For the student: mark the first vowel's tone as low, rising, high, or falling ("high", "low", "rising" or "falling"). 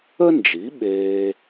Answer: high